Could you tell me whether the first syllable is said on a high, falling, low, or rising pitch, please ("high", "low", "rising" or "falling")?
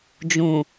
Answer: low